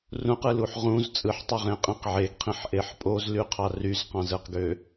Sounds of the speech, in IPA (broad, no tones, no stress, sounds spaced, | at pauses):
r ũ q ɯ l u ħ ʁ ũ z t͡sʼ ɯ ħ tˤ ø ʁ ẽ qʼ ẽ q ʕ e ɡ qʰ ĩ ħ ʔ e ħ pʼ o z l y qʰ ɑ r y z q ɑ̃ z ɯ q ɡ ø